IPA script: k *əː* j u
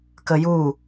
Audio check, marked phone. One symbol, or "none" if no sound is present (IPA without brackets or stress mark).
ə